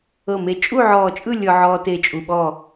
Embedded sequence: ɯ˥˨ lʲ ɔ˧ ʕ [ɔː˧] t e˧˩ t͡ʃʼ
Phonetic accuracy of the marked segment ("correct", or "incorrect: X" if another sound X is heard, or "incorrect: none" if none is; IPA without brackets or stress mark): correct